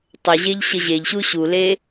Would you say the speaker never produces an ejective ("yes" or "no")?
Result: yes